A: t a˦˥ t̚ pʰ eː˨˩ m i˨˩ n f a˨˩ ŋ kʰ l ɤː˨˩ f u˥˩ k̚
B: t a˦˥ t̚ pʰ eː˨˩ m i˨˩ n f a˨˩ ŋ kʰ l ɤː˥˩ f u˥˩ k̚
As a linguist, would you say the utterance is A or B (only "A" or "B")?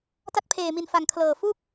A